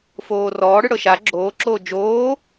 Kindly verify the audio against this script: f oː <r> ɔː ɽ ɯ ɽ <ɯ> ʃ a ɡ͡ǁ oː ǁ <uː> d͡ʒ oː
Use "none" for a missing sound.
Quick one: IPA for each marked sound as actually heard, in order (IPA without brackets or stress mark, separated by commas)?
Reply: r, ɤ, oː